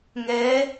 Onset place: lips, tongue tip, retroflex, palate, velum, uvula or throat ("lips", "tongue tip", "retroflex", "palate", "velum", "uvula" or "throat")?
velum